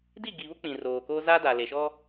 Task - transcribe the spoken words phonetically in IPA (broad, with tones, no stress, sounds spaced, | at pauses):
d i˦˨ ɡ i˨ β ʊ˦ k͡p ĩ˨ r oː˨ k oː˦ z a˦ d a˨ l e˨ ʃ ɔ˦